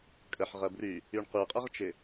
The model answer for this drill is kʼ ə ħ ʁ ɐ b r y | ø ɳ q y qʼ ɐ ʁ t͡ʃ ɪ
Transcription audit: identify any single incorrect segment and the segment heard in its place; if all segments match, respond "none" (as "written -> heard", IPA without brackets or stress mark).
ø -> y